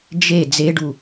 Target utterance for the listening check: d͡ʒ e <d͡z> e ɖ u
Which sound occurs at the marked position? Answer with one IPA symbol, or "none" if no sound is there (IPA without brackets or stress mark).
d͡z